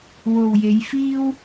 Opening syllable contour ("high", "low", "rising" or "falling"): low